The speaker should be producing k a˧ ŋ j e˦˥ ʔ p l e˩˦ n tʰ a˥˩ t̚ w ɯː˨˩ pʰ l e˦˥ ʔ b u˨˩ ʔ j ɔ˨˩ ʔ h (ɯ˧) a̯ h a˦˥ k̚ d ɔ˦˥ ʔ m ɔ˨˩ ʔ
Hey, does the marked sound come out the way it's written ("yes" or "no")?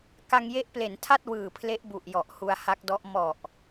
no